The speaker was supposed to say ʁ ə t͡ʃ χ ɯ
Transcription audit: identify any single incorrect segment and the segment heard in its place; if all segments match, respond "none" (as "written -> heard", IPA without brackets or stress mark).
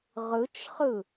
ə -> ɯ